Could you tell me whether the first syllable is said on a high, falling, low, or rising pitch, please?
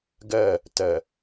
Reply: falling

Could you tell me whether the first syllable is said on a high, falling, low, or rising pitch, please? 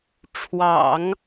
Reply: low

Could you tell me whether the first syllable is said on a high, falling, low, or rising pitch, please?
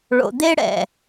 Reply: low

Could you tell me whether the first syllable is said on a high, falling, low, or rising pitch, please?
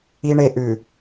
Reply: low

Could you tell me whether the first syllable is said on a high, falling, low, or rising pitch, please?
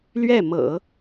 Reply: falling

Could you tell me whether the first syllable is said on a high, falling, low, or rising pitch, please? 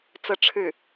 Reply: falling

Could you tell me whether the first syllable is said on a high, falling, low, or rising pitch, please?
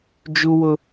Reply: high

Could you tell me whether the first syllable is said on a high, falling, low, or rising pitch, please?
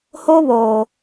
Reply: high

